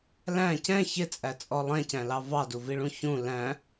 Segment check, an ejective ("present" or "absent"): present